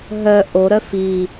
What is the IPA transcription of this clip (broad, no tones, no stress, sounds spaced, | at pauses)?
ɦ œ ʔ o ɾ œ f i